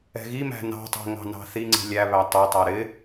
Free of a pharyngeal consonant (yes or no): yes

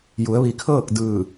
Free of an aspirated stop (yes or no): no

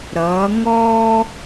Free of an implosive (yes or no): yes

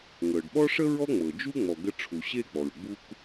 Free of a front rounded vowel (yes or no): yes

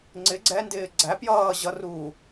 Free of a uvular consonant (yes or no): yes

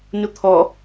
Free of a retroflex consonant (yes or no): yes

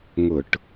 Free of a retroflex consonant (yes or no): no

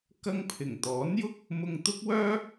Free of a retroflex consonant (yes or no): yes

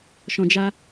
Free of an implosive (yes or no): yes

